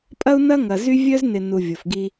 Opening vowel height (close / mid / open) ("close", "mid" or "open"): open